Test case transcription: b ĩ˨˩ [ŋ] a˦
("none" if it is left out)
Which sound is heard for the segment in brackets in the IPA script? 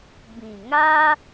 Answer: ŋ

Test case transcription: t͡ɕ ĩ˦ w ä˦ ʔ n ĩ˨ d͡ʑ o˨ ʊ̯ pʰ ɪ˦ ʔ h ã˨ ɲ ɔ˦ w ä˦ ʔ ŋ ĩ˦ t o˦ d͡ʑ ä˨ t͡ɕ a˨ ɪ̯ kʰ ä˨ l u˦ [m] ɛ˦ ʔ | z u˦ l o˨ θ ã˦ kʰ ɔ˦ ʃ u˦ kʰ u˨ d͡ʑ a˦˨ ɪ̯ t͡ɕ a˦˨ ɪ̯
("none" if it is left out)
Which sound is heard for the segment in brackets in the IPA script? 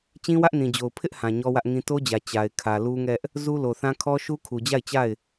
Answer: ŋ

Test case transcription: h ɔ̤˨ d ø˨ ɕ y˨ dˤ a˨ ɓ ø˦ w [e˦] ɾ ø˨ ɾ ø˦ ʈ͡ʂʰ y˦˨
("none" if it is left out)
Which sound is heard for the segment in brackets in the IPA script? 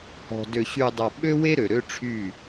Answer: e˦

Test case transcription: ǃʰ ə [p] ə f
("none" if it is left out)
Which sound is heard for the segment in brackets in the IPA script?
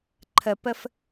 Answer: p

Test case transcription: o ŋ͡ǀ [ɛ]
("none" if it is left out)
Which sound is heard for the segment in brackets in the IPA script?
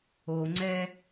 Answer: ɛ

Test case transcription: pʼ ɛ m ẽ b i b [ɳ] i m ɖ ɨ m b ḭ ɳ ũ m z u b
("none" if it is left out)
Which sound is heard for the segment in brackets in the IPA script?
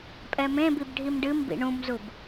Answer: ɖʱ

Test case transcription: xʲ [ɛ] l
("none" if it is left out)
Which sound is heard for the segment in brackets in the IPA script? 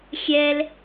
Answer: ɛ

